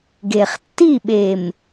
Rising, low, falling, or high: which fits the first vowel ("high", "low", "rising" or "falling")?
low